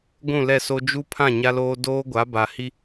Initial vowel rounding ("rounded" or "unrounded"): rounded